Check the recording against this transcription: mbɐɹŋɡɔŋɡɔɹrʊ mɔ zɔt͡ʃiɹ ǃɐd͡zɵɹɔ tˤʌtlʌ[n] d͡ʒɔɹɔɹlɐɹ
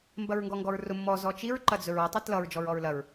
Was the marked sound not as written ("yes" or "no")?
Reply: yes